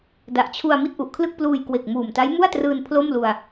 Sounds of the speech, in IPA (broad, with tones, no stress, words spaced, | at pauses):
da˨˩ʔt͡ɕʰu˧a̯ mi˥˩t̚ʔu˨˩ʔkʰlɯ˥˩k̚pluː˧j kwe˨˩k̚muː˨˩mta˦˥j mu˥˩a̯trɯː˧n pʰlo˥˩mlu˧a̯